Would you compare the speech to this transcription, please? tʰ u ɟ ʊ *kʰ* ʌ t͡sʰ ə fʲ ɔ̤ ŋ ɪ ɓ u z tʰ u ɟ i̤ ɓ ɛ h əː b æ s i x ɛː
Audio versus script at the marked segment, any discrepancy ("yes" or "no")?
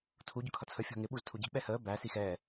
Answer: no